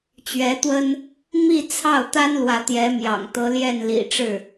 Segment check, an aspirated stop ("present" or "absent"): present